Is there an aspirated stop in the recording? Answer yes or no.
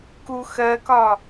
no